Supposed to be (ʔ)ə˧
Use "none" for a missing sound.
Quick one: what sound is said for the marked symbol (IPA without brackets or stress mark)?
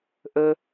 ʔ